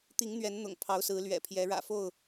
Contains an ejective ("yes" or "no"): no